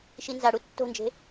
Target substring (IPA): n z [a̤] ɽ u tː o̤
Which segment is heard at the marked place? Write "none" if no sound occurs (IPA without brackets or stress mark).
a